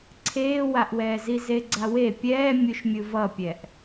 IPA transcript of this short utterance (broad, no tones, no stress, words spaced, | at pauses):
ǀʰeːwaʔwɛːzi zeɡ͡ǀawe pʲɛː mʲuʃmʲɯvʌpʲɛʔ